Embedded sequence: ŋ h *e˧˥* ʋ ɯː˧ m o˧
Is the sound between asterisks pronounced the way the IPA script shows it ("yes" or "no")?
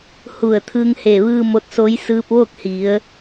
no